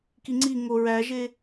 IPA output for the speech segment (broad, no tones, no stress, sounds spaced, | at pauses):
k i ŋ͡ǀ i ŋ o ɹ æ ʒ e